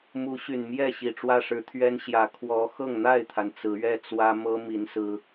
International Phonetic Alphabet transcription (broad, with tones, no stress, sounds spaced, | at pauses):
m u˨˦ ɕ y˨˩ n m j ɛ˥˨ ɕ i˨˩ ʈ͡ʂ w ä˦ ʂ ɻ̩˨˦ t̪ʰ ɥ ɛ˦ n ɕ j ä˨˩ kʰ w ɔ˨˦ x ɤ˥˨ ŋ n̪ a˥˨ ɪ̯ t̪ʰ a˩ n t͡s ɹ̩˨˦ ɥ ɛ˦ t͡s w ä˦ m ɤ˦ m i˨˦ n s ɹ̩˦